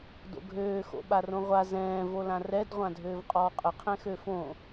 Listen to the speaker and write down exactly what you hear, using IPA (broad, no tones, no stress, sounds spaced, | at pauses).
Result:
d o̰ ɡʱ øː x o̰ ɓ a r õ ʁʷ a z ɛ̃ː v o l ã r ɛ d ʁʷ ã dʱ øː v qʼ ɔː qʼ ə qʰ ɛ̃ x ø f õ